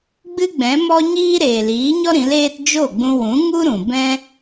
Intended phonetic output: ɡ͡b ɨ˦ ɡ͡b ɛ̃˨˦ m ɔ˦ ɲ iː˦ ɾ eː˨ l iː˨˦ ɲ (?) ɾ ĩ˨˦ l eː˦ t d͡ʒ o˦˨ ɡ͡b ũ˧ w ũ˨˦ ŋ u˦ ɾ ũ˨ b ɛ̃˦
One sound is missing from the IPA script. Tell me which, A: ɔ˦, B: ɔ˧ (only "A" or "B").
A